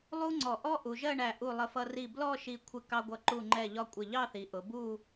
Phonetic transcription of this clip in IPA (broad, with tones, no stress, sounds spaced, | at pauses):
lˠ u˥ ŋ͡ǀ ɔ˧˩ ʔ ɔ˥ ʔ u˩˧ ʒ ɜ˥˧ ɳ æ˧˩ ʔ u˧˩ lˠ ə˧˩ f ʌ˧ r i˧˩ b l ɔ˥˧ ʃ i˧˩ kʷʰ ɪ˧ k ɑ˧ ɡʷ ʌ˧˩ ǃ u˧˩ ŋ͡ǃ ɛ˧˩ ʎ ɒ˧ kʷʼ ɪ˧˩ ʎ ɑ˥˧ θ i˩˧ ʔ ʊ˩˧ b u˧˩